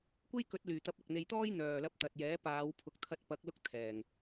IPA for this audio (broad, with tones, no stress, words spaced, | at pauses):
kʷe˥jkɵ˨˥t̚ lyː˨˩t̪ɐ˧p̚ ɐ˨k̚n̪e˧j t̪ɔː˥jn̪œː˨˩lɐ˧p̚ t̪ɐ˨t̚jɛː˨˥paː˨˧w pʰʊ˨˥k̚t̪ʰɐ˧t̚pɐ˨˥k̚ lʊ˥k̚t̪ʰɛː˨˩ŋ